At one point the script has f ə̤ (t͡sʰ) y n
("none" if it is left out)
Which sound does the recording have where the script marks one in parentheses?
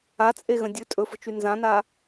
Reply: t͡ʃ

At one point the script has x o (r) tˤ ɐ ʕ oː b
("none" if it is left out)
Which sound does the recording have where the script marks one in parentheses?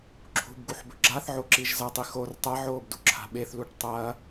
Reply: r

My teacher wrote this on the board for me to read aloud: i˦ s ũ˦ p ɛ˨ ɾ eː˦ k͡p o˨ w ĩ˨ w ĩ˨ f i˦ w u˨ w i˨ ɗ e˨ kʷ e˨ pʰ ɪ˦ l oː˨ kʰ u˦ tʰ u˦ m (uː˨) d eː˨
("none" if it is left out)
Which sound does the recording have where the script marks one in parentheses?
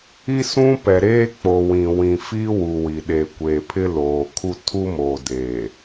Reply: oː˨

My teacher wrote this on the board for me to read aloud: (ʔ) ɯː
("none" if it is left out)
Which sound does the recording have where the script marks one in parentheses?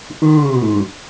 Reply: ʔ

